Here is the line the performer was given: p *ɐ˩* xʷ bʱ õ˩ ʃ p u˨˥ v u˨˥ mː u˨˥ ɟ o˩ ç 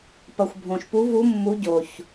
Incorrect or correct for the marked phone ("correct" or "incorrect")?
correct